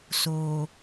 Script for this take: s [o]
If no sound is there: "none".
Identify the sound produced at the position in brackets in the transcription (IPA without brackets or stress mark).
o